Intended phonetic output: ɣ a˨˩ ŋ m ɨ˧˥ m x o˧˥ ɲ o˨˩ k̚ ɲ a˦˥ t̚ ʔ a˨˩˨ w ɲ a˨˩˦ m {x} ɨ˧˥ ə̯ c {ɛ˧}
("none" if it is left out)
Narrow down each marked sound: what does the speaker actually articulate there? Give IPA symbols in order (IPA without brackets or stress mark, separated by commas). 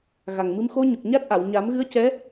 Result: ɣ, ɛ˧˥